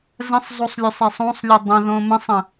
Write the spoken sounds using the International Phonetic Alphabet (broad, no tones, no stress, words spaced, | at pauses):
zə̃sˤzˤosˤlʲɵsˤɛsˤ õsˤlʲə dˤə̃ðõ mə̃sˤə̃